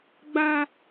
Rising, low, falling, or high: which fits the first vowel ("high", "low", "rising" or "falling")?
high